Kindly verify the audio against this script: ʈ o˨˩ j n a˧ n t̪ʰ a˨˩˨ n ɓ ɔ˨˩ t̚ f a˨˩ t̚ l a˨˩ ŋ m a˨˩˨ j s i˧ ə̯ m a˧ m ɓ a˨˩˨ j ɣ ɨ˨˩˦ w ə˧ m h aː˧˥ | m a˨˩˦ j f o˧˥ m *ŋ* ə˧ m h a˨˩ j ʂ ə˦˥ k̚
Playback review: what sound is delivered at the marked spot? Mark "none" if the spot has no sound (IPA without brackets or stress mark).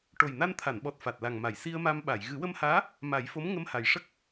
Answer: ŋ